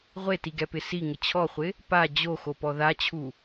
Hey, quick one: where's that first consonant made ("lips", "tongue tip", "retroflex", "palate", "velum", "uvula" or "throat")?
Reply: uvula